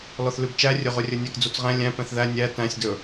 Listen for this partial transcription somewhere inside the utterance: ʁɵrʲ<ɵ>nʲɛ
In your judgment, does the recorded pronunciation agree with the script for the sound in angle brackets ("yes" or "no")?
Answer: yes